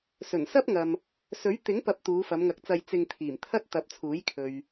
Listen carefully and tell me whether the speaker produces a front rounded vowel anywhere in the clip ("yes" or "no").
no